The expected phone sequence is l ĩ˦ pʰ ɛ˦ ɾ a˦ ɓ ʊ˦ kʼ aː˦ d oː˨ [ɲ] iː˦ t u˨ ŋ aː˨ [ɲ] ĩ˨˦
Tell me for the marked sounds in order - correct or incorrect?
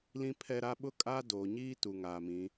correct, incorrect

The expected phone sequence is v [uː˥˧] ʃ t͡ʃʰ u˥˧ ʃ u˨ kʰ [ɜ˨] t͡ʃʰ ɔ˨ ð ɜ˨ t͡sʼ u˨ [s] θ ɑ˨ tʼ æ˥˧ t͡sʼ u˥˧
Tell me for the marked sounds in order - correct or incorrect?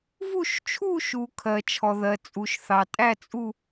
incorrect, correct, incorrect

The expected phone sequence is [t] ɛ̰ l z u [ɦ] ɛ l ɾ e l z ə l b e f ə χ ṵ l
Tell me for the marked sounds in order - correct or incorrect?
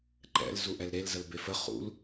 incorrect, incorrect

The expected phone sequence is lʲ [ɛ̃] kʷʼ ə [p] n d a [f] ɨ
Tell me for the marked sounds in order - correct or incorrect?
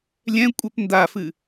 correct, correct, correct

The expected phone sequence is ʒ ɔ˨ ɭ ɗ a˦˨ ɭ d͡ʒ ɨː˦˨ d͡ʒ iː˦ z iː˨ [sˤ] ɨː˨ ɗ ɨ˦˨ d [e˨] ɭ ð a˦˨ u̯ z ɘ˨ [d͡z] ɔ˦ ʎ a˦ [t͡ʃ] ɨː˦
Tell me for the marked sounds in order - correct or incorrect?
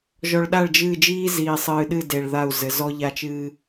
correct, correct, incorrect, correct

